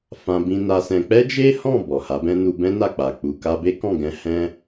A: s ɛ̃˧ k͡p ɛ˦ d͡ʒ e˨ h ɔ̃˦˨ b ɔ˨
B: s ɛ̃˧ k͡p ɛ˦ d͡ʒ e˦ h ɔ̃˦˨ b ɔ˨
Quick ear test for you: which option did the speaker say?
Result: B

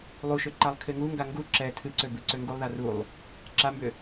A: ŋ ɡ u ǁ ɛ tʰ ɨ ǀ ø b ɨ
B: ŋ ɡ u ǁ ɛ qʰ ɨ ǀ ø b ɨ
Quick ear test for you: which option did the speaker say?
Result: A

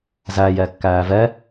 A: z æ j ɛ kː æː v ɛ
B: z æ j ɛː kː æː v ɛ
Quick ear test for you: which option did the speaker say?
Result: A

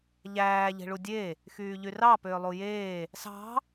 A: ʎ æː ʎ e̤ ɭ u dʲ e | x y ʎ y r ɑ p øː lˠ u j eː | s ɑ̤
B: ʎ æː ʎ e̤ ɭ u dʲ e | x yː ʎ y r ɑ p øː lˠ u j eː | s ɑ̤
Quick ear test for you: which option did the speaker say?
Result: B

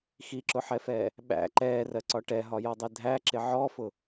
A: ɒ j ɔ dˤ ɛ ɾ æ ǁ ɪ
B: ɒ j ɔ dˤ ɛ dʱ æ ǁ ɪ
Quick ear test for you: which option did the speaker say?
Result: B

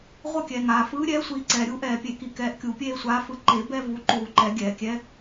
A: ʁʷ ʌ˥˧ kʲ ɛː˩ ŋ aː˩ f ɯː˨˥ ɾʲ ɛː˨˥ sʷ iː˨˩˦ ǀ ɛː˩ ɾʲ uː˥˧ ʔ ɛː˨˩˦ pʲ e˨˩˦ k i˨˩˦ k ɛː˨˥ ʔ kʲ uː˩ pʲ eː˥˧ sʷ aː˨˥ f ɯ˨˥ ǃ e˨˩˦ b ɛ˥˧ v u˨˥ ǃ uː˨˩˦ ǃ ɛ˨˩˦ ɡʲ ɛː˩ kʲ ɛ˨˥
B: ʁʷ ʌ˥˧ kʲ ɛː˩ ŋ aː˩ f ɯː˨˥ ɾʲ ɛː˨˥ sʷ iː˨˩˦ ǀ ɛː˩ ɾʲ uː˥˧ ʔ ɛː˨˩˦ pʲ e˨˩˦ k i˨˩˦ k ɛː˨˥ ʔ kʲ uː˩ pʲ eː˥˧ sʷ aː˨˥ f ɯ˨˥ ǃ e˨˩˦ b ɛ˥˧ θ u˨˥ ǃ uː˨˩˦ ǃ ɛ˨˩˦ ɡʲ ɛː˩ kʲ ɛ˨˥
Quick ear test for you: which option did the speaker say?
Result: A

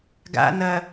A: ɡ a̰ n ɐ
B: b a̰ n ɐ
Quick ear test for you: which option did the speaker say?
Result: A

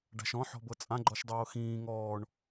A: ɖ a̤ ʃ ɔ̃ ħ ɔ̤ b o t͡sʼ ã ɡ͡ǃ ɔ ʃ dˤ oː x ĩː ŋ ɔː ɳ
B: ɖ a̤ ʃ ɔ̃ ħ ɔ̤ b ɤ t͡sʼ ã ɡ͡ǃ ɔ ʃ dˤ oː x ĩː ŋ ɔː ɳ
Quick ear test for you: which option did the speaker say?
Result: B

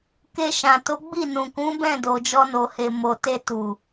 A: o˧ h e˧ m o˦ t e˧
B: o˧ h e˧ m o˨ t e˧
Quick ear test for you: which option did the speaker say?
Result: B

